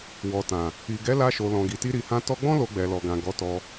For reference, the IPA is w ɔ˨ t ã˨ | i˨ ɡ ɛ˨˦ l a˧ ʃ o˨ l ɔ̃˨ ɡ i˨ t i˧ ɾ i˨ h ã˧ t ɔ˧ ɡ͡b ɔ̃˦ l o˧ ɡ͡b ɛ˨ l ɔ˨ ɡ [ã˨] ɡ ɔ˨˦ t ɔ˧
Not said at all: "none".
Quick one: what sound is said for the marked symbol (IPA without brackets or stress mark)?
ã˨